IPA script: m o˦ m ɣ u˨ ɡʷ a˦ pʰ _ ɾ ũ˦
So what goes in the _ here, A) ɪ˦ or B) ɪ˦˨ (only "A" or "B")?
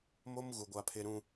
A